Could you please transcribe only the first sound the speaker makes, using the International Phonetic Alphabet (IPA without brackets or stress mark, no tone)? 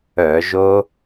œ